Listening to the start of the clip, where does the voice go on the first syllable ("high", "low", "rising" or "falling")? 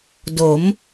rising